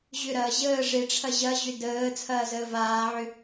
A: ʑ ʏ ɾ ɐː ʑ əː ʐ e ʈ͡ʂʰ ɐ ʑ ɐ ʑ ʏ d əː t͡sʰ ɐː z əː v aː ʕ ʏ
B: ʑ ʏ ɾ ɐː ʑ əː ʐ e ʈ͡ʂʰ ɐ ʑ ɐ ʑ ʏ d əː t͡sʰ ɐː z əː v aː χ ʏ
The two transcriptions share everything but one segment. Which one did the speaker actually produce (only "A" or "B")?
A